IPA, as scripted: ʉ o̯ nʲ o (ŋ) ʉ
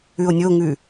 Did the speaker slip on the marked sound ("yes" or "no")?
no